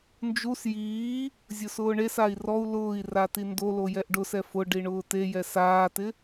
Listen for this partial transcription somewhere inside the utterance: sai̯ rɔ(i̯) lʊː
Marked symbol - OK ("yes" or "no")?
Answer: no